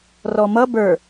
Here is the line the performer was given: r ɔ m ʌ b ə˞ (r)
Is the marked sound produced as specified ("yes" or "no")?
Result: no